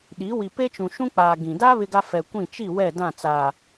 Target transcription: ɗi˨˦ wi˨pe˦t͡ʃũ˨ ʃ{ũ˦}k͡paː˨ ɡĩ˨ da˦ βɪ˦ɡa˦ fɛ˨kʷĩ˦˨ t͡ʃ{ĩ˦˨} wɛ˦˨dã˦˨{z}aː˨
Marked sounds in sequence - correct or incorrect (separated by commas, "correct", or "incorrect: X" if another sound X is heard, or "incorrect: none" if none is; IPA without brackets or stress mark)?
correct, incorrect: i˦˨, incorrect: t͡s